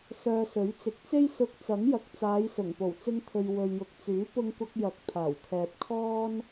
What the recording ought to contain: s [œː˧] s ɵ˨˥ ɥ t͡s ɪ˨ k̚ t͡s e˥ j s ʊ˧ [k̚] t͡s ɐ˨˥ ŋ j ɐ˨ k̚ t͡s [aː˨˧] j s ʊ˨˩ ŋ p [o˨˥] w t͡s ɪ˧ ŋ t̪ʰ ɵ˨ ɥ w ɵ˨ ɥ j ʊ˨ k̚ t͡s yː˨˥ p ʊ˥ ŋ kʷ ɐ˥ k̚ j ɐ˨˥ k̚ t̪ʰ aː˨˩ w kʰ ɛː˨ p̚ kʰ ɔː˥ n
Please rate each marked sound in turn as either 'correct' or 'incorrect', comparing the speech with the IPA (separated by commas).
correct, correct, correct, incorrect